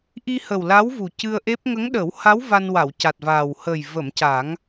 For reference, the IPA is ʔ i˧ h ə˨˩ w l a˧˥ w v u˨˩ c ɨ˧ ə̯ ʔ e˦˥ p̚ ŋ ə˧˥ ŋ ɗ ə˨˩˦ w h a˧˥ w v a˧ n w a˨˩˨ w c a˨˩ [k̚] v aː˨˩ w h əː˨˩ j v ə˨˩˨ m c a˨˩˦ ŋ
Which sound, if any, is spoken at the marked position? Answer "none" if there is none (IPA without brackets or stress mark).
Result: t̚